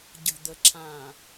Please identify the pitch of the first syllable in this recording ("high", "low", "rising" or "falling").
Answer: low